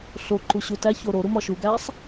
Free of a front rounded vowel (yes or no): yes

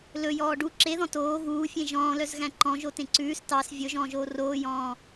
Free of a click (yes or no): no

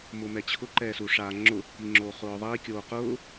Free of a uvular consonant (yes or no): no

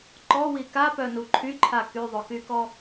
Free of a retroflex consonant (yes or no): yes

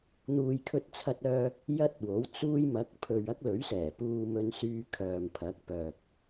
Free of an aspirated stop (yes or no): no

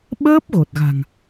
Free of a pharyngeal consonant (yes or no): yes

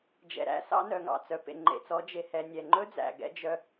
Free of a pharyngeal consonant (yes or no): yes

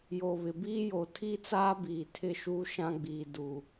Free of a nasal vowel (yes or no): no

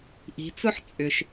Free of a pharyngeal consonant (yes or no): no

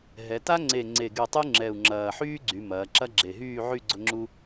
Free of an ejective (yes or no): yes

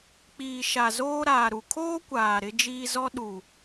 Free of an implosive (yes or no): no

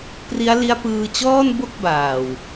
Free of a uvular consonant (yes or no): yes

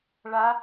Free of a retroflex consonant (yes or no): no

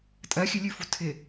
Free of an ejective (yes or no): no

